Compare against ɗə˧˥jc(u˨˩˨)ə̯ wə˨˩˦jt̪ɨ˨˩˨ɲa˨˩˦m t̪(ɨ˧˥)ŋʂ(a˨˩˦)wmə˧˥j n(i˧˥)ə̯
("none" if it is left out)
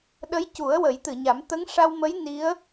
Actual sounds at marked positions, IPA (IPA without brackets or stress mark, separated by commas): u˨˩˦, ə˧˥, a˧, i˧˥